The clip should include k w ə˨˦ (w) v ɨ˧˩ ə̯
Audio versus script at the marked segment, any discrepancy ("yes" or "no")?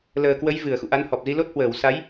yes